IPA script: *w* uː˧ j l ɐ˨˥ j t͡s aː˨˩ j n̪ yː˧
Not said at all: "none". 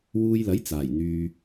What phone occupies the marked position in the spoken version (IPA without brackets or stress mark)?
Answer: w